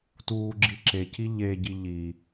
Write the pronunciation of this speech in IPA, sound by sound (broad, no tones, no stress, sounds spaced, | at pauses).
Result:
t uː ɡ͡ǁ i ǁ e c i ʎ e ɟ i ʎ i